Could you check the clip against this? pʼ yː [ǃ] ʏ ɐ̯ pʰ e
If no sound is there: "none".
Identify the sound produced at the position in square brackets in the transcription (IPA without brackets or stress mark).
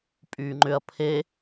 ŋ͡ǃ